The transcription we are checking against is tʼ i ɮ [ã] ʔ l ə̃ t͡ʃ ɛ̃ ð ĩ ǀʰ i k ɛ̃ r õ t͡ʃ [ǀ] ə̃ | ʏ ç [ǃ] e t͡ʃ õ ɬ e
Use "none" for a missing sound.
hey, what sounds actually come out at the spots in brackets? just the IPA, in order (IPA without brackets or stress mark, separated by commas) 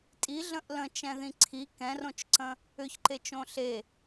ə̃, ǀ, ǃ